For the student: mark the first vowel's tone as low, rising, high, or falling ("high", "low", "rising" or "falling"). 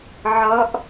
rising